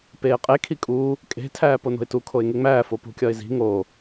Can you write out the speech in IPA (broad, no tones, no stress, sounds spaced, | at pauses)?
p eː qʼ e kʰ i kʼ uː | kʼ e̤ tʰ æː p o n o̤ ɪ̯ t u kʰ o ɪ̯ ŋ e ŋ͡m æː f o p ṳ kʲ ɒ ɪ̯ z i̤ ŋ oː